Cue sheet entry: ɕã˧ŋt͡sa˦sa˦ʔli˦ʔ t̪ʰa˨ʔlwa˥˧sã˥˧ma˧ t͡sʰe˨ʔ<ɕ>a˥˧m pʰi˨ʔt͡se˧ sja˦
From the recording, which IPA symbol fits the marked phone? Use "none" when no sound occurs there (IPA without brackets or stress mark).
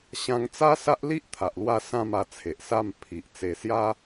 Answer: s